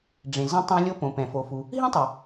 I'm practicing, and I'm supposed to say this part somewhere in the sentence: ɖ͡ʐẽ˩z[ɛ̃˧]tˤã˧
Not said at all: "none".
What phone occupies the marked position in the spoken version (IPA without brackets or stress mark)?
ɛ̃˧